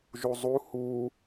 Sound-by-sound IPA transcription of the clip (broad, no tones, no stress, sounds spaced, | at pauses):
ʒ u zˤ u h u